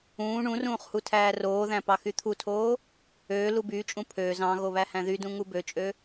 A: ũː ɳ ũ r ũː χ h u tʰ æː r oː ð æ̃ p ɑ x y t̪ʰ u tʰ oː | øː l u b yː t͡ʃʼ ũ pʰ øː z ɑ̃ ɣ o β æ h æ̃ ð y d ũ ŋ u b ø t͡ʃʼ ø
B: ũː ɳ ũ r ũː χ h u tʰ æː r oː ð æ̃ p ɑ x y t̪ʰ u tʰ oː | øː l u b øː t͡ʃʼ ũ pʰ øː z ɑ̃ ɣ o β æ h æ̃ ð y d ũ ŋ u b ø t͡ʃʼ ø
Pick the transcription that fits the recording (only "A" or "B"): A